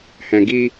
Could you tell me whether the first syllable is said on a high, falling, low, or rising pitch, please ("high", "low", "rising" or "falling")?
low